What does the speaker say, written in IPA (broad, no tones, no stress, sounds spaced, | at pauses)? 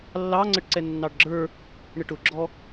lː ɑ ŋ͡ǀ ə ʈ ǀ ɛ nː ɑ ɖ ɡ͡ǁ ə˞ | ɳ ə ʈ ʊ ɡ͡ǁ ɔ